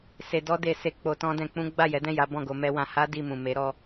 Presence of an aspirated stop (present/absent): absent